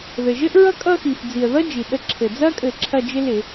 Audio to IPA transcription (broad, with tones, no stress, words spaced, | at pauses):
ðɘ˨˩ ʒɘ˥ʔɹʌ˥kʼʌ˥˧xi˨˩f d͡zi˨˩ə̯ðʌ˥ d͡ʒi˨˩ ɗə˧ǁʰɘ˨˩ d͡zɐ˥kʼɘ˧˩˧ ǁʰɐ˥˧d͡ʒɪ˥ lɪ˧˩˧